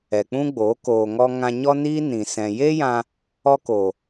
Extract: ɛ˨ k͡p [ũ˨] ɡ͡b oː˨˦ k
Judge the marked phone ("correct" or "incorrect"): incorrect